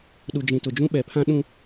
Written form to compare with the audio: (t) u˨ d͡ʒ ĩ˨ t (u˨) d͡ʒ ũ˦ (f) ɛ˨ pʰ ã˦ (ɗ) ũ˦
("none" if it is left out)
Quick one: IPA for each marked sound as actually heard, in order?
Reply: ɗ, ʊ˨, ɓ, ɗ

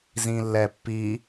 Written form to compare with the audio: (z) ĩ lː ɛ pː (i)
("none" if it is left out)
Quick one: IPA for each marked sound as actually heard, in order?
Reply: z, i

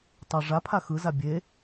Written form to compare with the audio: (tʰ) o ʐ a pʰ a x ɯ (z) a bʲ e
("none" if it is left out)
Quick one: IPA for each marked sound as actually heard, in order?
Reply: tˤ, z

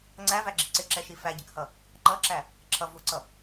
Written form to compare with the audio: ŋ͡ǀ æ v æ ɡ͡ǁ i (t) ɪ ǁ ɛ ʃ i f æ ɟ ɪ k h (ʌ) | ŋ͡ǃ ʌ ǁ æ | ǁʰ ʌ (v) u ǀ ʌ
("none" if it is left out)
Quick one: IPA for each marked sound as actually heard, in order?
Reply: ǀ, ʌ, v

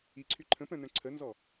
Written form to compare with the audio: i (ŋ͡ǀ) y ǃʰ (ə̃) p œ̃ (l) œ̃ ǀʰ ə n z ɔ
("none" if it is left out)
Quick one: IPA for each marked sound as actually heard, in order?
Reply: ǀʰ, ə̃, n

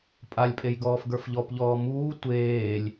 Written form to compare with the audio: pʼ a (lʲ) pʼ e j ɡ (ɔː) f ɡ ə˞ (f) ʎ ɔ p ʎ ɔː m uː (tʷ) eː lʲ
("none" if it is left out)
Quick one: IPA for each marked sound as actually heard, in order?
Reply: lʲ, ɔː, f, tʷ

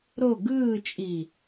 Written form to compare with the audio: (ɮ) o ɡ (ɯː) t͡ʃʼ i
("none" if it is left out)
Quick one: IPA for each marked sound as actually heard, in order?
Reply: ɾ, ɯː

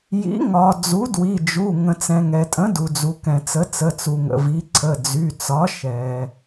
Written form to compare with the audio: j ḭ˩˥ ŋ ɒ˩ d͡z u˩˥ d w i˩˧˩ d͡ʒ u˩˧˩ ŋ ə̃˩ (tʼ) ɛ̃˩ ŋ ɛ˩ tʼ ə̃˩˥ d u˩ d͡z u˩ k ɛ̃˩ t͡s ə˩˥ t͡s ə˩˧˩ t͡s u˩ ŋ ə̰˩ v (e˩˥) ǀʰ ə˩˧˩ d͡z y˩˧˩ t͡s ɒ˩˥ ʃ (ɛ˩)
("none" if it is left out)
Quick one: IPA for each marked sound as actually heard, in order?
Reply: t͡s, i˩˥, ɛ˩

